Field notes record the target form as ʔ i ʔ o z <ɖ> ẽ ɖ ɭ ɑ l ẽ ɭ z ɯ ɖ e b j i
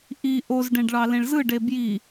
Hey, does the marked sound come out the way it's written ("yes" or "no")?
yes